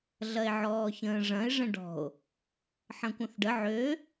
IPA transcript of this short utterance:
ɮɐe̯ʕɔːçə̃ːʐɐ̃e̯ ʐə̃ɖɔ̤o̯ | ħɐ̃kʷɐ̃θɖə ʕø

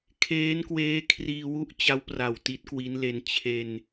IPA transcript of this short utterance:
kʰeː˦˥nkweː˦˥kʰriː˧ wu˥˩ʔt͡ɕa˦˥wpra˨˩w ti˦˥t̚kwi˦˥nle˧n t͡ɕʰe˧n

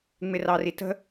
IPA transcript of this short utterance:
ŋ͡mɪrɑritə̤

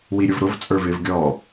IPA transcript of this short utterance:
wiɾʲʊvɾʊv t͡sʼə˞vɪv ɡʲɔ

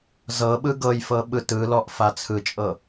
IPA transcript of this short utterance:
zɤɓɯ ɡɤjfɤ ɓɯtɯlɔʔ fat͡sʰɯt͡ʃʼɤ

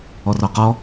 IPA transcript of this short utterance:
ɔrɔqɔ

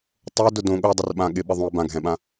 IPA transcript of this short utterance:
tˤo dʊdõ ɠodˤʊrɓã ɠɪɓɪ ðˤõə̯bãɡʱɛ̃ɓã

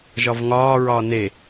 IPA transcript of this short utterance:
ʒɒvŋɒːɹɒː ne

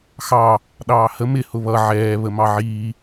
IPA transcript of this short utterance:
xɑ | ɗɑːhə mɪ hʊβʌ ʕɛː βəmɑʕiː

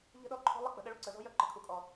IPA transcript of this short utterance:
ʎə̤˦ɗɔ˦˨ǃʰɔ̤˦lˠə˦ k͡pə̤˨ɗə˦ɭu˦ǀə˨ zɔ̤˦jœ˦ ǃə̤˨kʰu˨kʼɔ˨

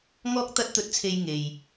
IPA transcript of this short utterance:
ŋɔː˥k̚t̪ɐ˥t̚t̪ɵ˧t̚t͡sʰe˧j ŋe˨j

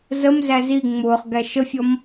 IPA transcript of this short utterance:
zəmzæ zi ŋ͡mʊːχɡæ ʃəfʲɔm

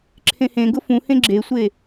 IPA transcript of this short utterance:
ǁʰẽhẽɡʊ fũhẽ ɡ͡ǁesʷe

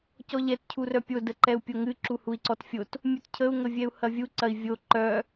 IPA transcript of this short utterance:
cɔʎɛt cʰurœpʲo dəǃɛu̯pʲoŋɨ ǁuhui̯ǀɔtfʲot | mʲutcʰəu̯ ŋəvʲɛu̯hɐvʲu ǀɐi̯vʲo ǃœ

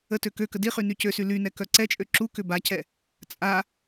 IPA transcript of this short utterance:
ətø køkə diχy nycøsy lynɛ kœǀɛt͡ʃʼø ǁukʏ bacɛ | t͡sʼa

